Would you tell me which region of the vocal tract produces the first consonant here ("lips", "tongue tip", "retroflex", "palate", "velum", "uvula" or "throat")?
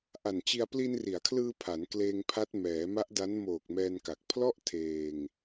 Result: throat